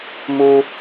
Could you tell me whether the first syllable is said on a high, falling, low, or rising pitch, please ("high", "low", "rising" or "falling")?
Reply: high